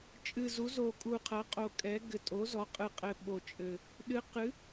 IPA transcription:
t͡ʃʼɨ˨˩zu˩˥zo˨˩ kʼu˨˩qʰɐ˩˥qʼo˨˩kʼɛ˩˥ ɡɘ˨˩tʼo˩˥zɔ˩˥qʼɨ˨˩ qʼɘ˨˩ ɓo˨˩t͡ʃʼɘ˨˩ | ɗɨ˩˥ qɨ˩˥

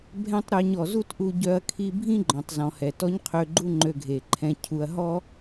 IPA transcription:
bʱɛ̃˥tˤɾœ˧ɲɔ˩ zu˥tʔu˧ɟœ˧ɐ̯ kʰi˧bʱĩ˥ ɡ͡ǃɔ̃˩tˤzɔ̃˩hɛ˩ tɔ˥ɲqʰø˧ɡ͡ǃu˥ ŋ͡ǃø˧ɡʱe˩ǃʰɛ̃˧cʰu˧ɐ̯ ɦɔ˥

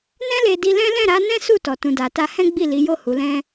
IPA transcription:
nɛ̃˦le˧di˧lɛ̃˦ lɛ̃˦˨ɾa˨˦nɛ̃˦ su˦˨ tɔ˨tũ˨da˨ ta˧hɛ̃˦ ɡ͡bi˦˨li˨˦jo˦˨ hu˨˦lɛ̃˦

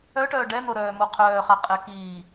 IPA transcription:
œʈœː ɖɛn̪oɾœːmo qʰœːχa qʼɛkiː

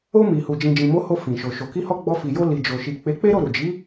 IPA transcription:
o˧ mi˨hu˨ d͡ʒĩ˨d͡ʒĩ˨mo˨˦ ho˧ fĩ˨ ʃo˨ʃo˨ ki˧hɔ˧ ɡ͡bɔ˧fi˨jo˧ li˨d͡ʒo˨ʃi˨ k͡pe˨˦k͡pe˦ ɾo˦˨ɾu˨d͡ʒi˨˦

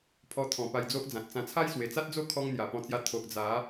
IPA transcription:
pʰɔ˧t̪ʰɔ̃˨˩ pa˧jd͡zo˦ʔd͡zã˨t̚t͡sã˧ t͡sʰa˦jswe˨˩t͡sa˦t̚d͡zo˥˧ kʰɔ˦ŋn̪ja˨˩pɔ̃˧ t͡sja˧ t̪ʰo˨ʔd͡za˨˦

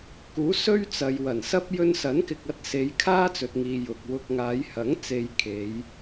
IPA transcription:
kuː˨˥sɵ˥ɥt͡sɐ˨j wɐ˨˩nsɐ˥p̚ jɵ˧nsɐ˨˥nkɪ˨k̚ɐ˧t̚ se˨˧jkʰaː˥t͡sɵ˨t̚ŋiː˨ jʊ˨k̚wʊ˧k̚ ŋaː˨˧jhɐ˨˥ŋ t͡se˧jkʰe˨˧j

